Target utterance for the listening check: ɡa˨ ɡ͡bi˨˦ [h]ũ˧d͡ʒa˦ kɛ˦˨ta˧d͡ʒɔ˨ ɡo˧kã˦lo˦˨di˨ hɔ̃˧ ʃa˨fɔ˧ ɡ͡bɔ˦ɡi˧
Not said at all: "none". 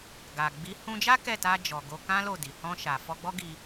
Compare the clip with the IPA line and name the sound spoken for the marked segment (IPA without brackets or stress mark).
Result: h